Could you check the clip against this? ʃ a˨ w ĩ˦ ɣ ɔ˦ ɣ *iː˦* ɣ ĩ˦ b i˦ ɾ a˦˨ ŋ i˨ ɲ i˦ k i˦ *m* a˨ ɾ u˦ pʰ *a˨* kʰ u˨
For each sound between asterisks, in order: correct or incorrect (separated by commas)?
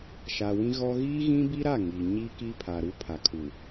correct, incorrect, correct